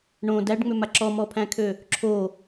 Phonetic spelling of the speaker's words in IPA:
ɳ õ d æ ɖ ŋ͡m ʏ m a ǁ ɔ m ɔ pʰ æ̃ kʰ ø | ǁʰ o

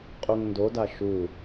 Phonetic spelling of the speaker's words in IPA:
qʼ u ŋ n d o d a ʃ u

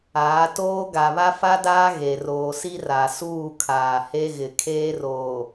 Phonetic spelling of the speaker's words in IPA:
aː˨˦ t oː˦ ɡ a˨ β a˦ f a˦ d aː˦ ɣ e˨ r oː˨ s i˦ r a˨ s uː˦˨ kʰ aː˨ h e˦ ɣ ɪ˨ kʰ eː˦ r oː˨

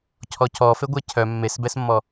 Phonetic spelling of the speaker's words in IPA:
cʰ ɔ c ɔ f e ɡʷ ɛ cʰ œ mː e s b ɛ s mː ɔ

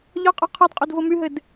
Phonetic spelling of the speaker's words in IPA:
ʎ ɒ qʼ ɔ qʰ ɔ d qʼ o d v o m y ɦ ɘ d

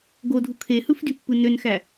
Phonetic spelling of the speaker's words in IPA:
ɡ o dʱ u kʰ e h ɯ f d y pː ɯ n ø n x æ

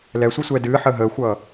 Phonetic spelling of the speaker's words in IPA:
l ɛ sʷ ɨ sʷ ɛː d ɨː ħ əː ɦ əː xʷ ʌː

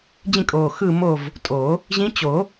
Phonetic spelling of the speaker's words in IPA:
d͡ʑ ĩ˦˨ kʼ oː˨˩ x ɯ˦˨ m o˦˨ v | tʼ o˨˩˦ | ʑ ĩ˧˥ t͡ɕ o˨˩˦

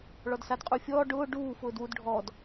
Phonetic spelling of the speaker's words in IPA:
ɭ ɔ d s a d qʼ u fʲ ɔː ɖ ʊː ɖ uː f ʊː d w u d ɖʱ ɔː d

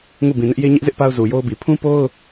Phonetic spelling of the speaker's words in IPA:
ŋ u˦˨ b ĩ˨ n ɪ˦ ʔ j e˦ ɲ ɪ˦ ʔ z ɪ˦ ʔ p a˦ ʊ̯ z u˨ j o˦ ʊ̯ b i˨ pʰ ũ˦ p o˦ ʊ̯

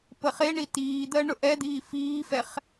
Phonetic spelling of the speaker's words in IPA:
p ə χ e ɳ i t iː d̪ ɜ ɳ ʊ ʔ ɛ d̪ iː f iː f ɛ χ

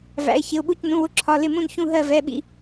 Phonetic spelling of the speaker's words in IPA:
v æ̰˩˧˩ ɪ̯ ç ɪ˩˧˩ ʊ̯ ɓ u˧˩ c n ũ˩˧˩ w ʊ˧˩ ǁʰ ɒ˩˧˩ l ɪ˧˩ m ũ˧˩ n ç ũ˧˩ ɦ ɜ˧˩ v ɛ˩˧˩ ɓ ḭ˧˩

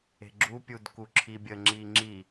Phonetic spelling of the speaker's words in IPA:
e̤ ɡ͡ǁ u pʲ u d k u ǁʰ i bʲ ə ŋ͡ǁ i ŋ͡ǁ i

